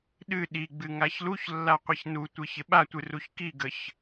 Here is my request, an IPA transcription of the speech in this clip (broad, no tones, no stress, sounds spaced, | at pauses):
ɗ ɨ ɗ i ɡ͡b ɨ ŋ a ç l u ç lː a qʷ i ç n u tʷ ɨ ç ɪ ɓ a tʷ ɨ r u ç k i ɡ ə ç